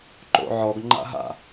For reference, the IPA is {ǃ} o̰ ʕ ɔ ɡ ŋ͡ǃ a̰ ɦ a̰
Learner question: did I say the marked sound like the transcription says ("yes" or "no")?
yes